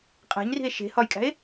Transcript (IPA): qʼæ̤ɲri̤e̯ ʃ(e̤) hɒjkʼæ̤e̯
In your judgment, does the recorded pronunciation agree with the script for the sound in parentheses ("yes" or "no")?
yes